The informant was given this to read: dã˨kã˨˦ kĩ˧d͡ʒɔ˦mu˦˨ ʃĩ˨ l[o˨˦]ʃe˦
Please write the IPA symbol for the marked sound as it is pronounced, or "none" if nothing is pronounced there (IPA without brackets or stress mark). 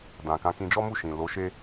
o˨˦